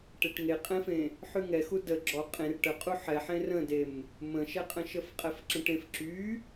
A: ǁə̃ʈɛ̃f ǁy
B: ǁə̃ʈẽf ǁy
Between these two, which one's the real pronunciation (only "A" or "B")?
B